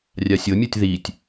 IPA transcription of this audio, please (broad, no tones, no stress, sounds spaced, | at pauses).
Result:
rʲ a sʲ ɤ mʲ u tʲ ð i tʲ